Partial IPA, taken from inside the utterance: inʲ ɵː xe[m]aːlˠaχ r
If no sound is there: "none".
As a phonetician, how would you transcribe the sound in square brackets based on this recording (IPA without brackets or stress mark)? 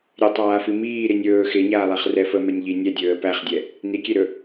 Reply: ɲ